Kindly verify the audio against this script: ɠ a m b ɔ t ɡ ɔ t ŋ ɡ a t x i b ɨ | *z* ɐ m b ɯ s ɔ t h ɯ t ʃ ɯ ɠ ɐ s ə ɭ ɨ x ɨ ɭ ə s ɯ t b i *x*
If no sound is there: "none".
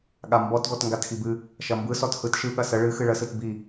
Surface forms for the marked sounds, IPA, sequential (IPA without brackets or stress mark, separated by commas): ʃ, none